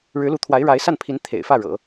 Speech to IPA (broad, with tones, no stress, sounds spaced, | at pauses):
ɻ ɻ̩˧˥ l u˧˥ t̪ʰ w a˧˥ ɪ̯ ɻ a˧˥ ɪ̯ s a˥˩ n pʰ i˧˥ n t̪ʰ ḛ˨˩ ɪ̯ f ä˥˩ ɻ ɤ̰˨˩˦